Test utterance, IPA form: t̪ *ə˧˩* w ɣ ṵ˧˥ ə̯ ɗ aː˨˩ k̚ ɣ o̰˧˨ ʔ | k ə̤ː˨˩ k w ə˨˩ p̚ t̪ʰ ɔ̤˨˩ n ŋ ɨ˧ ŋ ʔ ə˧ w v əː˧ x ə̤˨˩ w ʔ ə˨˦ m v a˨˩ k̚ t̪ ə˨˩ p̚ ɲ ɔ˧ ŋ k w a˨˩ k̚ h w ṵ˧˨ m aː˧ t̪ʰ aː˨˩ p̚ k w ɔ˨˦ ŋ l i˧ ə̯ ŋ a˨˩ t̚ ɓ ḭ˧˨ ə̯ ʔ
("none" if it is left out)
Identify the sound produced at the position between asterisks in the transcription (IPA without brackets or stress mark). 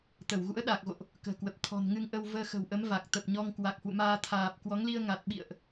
ə˧˩